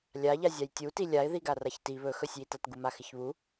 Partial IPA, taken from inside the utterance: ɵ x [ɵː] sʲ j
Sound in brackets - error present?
yes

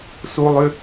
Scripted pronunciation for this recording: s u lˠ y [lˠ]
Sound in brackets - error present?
yes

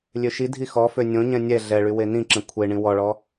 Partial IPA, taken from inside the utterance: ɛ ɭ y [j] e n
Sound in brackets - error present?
yes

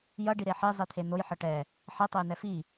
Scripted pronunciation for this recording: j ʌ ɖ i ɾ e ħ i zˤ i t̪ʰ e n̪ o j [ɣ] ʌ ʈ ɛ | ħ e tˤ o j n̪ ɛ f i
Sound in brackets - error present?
yes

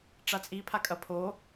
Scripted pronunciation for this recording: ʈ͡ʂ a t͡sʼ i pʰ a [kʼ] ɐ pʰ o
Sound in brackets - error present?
no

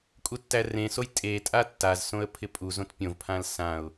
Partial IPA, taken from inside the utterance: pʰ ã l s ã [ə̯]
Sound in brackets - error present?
yes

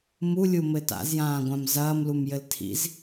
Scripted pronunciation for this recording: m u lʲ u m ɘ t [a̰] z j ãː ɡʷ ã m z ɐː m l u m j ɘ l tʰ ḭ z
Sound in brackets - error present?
no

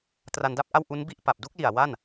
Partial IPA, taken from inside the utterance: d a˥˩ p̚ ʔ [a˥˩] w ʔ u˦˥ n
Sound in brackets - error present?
no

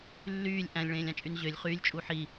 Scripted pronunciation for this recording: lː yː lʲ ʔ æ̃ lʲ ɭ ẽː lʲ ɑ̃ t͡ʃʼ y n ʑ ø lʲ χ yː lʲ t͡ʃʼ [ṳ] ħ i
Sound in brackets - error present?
yes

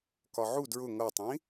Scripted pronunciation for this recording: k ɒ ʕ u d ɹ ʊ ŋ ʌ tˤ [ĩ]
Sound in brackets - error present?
no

